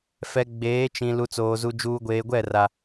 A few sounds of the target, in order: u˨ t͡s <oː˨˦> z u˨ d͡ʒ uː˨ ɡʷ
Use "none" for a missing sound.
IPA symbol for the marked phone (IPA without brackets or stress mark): oː˨